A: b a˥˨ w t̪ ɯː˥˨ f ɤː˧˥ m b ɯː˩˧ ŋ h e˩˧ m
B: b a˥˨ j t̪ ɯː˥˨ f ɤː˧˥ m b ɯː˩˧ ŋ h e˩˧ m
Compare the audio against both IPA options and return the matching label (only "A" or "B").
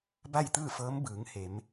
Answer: B